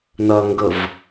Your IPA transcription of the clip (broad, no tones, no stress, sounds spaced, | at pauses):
n ɐ ŋ ɡ ə v